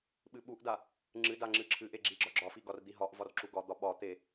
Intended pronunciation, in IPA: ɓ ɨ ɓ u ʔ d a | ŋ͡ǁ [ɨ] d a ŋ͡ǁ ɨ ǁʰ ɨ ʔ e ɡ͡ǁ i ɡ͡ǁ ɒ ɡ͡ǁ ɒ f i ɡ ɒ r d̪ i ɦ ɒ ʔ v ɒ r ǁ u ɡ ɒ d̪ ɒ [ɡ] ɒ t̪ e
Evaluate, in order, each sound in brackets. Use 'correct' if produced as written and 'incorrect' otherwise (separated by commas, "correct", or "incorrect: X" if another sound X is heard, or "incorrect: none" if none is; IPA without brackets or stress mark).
correct, incorrect: ɓ